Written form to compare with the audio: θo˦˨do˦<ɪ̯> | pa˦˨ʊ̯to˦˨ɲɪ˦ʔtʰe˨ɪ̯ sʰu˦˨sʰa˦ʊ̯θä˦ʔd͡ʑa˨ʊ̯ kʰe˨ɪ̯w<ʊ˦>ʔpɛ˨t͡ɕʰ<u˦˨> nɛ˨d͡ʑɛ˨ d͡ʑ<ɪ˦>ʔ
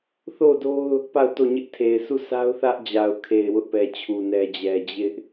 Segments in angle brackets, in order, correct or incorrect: incorrect: ʊ̯, correct, incorrect: u˨, correct

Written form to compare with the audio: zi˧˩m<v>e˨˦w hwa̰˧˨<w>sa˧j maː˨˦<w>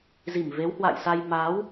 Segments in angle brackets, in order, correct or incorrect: correct, incorrect: j, correct

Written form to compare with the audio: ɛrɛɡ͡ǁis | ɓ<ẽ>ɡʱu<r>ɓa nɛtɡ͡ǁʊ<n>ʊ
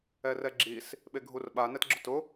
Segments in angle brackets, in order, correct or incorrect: incorrect: e, correct, incorrect: t

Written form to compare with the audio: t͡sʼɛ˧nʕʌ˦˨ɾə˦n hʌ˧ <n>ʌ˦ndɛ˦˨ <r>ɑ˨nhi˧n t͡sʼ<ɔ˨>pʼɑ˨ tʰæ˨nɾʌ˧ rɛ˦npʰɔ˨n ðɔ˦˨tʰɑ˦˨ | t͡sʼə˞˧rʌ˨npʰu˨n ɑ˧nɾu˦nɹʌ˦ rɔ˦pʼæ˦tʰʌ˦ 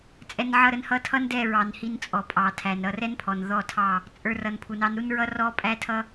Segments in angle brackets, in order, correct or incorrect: incorrect: tʰ, incorrect: ɹ, correct

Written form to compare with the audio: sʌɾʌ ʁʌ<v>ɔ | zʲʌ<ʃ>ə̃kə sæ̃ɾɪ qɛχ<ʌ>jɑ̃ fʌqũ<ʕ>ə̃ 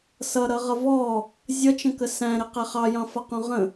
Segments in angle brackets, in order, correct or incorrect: correct, incorrect: t͡ʃ, incorrect: ɑ, incorrect: ʁ

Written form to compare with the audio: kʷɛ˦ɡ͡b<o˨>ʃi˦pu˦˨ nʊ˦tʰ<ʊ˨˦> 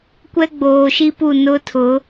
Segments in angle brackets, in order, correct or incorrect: incorrect: oː˨, correct

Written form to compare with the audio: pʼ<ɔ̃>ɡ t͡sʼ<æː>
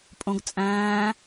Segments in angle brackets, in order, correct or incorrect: incorrect: õ, incorrect: æ̃ː

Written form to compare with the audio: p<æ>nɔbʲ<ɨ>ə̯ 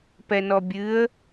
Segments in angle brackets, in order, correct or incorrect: incorrect: ɛ, correct

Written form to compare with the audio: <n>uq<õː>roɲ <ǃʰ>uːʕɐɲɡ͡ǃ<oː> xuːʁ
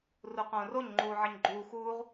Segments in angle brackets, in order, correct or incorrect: incorrect: r, correct, incorrect: ŋ͡ǃ, incorrect: uː

